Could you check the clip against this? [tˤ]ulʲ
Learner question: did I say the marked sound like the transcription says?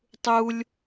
yes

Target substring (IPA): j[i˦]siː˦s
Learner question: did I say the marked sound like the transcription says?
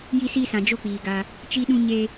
yes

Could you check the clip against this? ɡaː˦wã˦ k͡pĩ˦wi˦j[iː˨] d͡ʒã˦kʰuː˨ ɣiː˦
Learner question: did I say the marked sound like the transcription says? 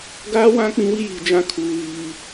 yes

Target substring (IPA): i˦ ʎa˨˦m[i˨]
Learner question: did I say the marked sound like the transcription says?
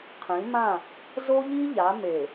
no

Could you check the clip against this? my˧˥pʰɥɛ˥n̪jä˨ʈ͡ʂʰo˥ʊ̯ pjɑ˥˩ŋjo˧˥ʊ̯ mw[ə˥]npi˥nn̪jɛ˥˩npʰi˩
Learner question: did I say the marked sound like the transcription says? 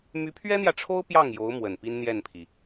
no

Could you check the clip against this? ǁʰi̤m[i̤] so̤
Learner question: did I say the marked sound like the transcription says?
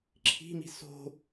yes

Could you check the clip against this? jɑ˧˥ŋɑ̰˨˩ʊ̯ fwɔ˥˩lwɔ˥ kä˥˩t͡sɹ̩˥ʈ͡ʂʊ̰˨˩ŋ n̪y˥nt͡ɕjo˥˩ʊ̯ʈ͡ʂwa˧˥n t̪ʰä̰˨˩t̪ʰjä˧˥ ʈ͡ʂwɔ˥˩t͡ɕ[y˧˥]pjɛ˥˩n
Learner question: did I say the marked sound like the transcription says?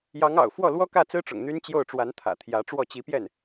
no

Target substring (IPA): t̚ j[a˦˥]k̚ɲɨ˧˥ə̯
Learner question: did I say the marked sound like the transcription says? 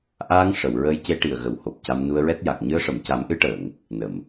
no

